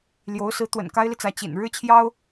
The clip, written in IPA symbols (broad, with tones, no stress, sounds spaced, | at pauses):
l j o˧˥ ʊ̯ s ɹ̩˧˥ t̪ w ə̰˨˩ n k a˥ ɪ̯ l i˨ t͡s ä˧˥ t͡ɕ ḭ˨˩ n ɻ ɻ̩˥ t͡ɕʰ j ɑ˥ ʊ̯